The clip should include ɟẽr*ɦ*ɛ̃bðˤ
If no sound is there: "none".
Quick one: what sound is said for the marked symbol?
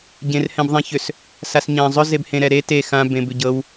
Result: h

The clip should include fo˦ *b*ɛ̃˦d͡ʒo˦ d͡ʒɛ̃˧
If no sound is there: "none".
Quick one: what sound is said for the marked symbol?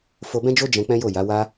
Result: b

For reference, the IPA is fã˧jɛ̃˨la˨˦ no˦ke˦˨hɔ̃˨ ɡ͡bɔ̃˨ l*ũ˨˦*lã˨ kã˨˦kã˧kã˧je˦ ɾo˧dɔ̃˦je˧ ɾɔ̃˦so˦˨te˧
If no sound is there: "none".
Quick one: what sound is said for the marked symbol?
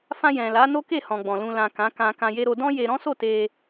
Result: ũ˨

